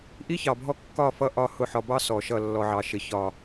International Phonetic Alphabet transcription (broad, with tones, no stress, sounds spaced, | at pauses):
ʔ i˦ ç ɑ˨ bʱ ɔ˦ kː ɒ˦˨ f ʌ˦˨ ʔ ɒ˦˨ h ʊ˦˨ ħ ɒ˨ b ɑ˦ s ɔ˨ ʃ ʌ˦˨ lː ɔ˨ ʕ ɑ˨ ʃ ɪ˨ ç ɒ˨